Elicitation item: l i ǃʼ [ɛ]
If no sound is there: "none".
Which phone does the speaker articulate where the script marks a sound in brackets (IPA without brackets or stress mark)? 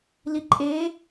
e